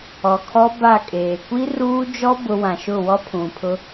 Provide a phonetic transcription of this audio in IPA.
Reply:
ɔ˨ kʰ ɔ˦ b a˦˨ kʼ eː˨ kʷ i˦ r uː˦ d͡ʒ ɔ˦ b ʊ˦ w ã˨ ʃ ʊ˦˨ w ɔ˦ pʰ ũ˨ pʰ ʊ˦

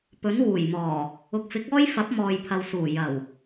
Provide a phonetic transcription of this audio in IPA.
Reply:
p ɵ˨˥ n w uː˨˩ j m ɔː˨˩ | ʊ˨ k̚ f ɪ˨˥ k̚ ɔː˥ j f ɐ˨˥ p̚ m ɔː˨ j pʰ ɐ˨ w s uː˨˩ j ɐ˨˩ w

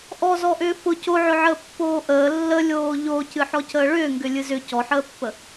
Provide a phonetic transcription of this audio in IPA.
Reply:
ʔ ɔ z ɔ ʔ ʏː f ʊ c o ʕ ʏ ʕ əː pː oː ʔ əː lː ə lʲ oː ʎ o c ɨ ħ ɔ c əː ɭ ʏː ŋ ɡ ʏ lʲ ɨ z ʏ c ɔ ħ əː pː ə

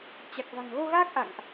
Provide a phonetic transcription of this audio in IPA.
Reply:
t͡ɕ a˨˩ k̚ v a̤˨˩ ŋ ɣ o˧ ɣ aː˦˥ k̚ ʔ a̰˧˨ ŋ ʔ

